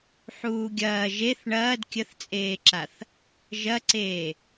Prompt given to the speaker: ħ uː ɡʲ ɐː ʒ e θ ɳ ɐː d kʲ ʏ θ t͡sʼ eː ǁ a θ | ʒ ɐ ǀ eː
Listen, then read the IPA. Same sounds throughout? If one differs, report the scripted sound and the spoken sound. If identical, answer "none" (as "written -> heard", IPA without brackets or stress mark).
ʏ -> ə